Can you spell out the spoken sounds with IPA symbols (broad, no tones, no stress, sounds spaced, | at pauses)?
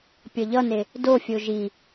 pʲ ʌ ʎ ʌ n e | d o fʲ o ʒ i